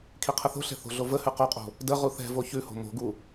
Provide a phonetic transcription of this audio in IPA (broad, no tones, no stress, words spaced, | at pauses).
kʰiqʰəθo̤ɬɛ̤ θo̤ɮovəhʉ qoqʼo̤ | də ʁuθɛ̤vo çʉho̤ mo̤ɡu